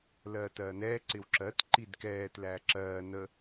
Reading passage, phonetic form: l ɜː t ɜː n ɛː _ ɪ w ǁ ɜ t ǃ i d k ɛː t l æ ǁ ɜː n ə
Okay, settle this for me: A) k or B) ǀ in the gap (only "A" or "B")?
B